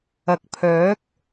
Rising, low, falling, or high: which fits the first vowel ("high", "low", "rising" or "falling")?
low